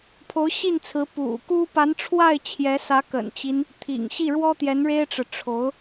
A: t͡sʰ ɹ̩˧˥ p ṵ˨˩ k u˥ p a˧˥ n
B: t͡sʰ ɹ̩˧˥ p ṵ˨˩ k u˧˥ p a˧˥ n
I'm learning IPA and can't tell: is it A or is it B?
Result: A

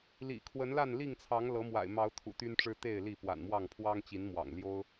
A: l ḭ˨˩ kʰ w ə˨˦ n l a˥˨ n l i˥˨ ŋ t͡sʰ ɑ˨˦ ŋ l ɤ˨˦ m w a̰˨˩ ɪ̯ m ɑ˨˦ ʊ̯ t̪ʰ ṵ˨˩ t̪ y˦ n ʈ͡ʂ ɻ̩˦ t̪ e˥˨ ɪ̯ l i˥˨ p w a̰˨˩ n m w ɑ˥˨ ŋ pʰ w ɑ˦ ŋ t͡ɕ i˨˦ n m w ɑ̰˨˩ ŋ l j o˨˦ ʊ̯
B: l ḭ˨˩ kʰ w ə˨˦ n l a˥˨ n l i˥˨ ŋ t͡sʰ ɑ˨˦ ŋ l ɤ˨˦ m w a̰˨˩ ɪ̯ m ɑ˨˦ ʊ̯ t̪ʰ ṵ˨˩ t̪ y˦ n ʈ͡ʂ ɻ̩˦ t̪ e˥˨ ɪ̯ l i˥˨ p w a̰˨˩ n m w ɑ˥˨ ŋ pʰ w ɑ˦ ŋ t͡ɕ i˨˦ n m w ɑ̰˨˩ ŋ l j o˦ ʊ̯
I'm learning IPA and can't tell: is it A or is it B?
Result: B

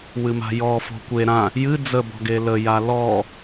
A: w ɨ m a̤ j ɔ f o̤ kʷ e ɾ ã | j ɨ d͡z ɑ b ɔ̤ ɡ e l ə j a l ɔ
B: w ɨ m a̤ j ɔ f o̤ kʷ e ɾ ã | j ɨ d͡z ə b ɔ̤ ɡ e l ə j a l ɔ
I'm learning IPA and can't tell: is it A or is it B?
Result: B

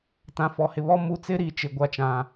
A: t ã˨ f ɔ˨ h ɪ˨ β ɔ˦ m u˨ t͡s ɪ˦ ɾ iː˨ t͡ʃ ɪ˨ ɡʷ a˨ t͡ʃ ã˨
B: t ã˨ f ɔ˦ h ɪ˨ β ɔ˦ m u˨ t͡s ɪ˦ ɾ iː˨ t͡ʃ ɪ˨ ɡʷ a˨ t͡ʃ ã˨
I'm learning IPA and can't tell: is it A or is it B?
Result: A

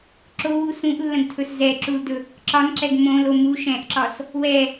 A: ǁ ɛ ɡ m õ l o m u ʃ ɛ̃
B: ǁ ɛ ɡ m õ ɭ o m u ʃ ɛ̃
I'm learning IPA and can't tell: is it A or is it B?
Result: A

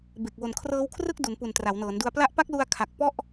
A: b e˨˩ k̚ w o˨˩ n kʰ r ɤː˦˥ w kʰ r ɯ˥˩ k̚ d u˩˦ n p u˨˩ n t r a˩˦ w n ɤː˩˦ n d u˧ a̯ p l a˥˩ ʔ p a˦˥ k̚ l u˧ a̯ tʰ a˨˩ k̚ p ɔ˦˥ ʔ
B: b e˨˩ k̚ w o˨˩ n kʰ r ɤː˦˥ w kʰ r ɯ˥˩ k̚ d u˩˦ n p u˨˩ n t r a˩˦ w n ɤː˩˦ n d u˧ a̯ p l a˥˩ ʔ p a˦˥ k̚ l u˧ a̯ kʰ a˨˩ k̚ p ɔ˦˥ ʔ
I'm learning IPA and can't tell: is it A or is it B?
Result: B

